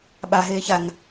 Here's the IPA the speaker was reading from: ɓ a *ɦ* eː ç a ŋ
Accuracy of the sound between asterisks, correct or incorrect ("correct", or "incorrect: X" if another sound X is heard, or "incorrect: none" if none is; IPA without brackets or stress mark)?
correct